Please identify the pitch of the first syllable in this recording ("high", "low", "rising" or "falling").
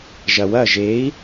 low